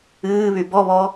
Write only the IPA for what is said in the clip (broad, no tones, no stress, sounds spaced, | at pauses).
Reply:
ɨː β y b ɔ β ɔ